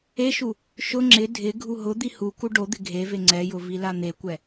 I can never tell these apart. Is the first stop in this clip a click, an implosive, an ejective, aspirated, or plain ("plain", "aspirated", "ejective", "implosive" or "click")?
click